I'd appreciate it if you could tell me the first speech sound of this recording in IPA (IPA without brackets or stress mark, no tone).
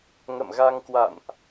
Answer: ŋ